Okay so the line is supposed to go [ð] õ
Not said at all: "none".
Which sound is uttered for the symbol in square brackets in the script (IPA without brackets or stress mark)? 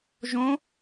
ʒ